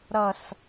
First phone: ɾ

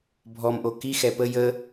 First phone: bʱ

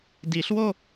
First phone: d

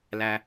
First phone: l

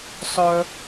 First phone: sˤ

